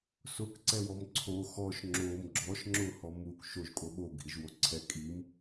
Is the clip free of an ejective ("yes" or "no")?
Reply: no